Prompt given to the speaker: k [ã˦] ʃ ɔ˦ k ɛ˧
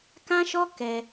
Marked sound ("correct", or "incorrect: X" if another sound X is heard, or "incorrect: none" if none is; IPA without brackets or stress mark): correct